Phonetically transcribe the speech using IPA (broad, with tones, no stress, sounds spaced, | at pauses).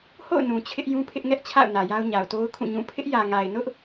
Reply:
h o̰˦˨ ʊ̯ n ũ˨ t͡ɕʰ ɪ˦ ʔ j ũ˦ pʰ ɪ˦ ʔ ŋ ɛ˦ ʔ t͡ɕʰ a̰˦˨ ʊ̯ n ä˨ j a˦ ʊ̯ ɲ a˨ ʊ̯ t o˦ ʊ̯ kʰ ũ˦˨ ɲ ũ˦˨ pʰ ɪ˦ ʔ j ä˨ ŋ a˨ ɪ̯ n ʊ˦ ʔ